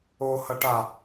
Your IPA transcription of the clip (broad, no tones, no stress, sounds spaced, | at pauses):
o h ʌ ʈ a